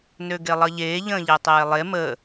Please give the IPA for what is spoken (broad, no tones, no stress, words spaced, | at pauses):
nøɡelˠʌʎeː ʎə̃ːʎetˤeːlˠe mə